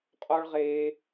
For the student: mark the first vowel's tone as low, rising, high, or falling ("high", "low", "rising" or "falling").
high